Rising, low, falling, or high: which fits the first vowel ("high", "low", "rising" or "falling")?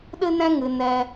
high